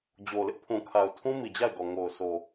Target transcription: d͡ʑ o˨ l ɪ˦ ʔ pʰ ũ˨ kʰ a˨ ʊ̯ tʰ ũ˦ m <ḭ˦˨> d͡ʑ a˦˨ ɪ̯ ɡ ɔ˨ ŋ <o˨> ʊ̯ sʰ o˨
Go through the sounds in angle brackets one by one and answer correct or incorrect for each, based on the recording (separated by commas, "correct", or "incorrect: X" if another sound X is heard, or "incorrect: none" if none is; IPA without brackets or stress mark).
incorrect: i˨, correct